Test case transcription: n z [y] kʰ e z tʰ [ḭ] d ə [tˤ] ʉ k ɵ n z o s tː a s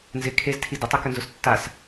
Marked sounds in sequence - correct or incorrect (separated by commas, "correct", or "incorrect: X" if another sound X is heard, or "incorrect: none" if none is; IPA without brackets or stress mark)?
incorrect: ɪ, incorrect: i, correct